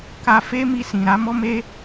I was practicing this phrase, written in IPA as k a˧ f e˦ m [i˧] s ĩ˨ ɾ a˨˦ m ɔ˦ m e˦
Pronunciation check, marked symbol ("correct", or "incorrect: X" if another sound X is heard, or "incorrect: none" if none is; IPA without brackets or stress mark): correct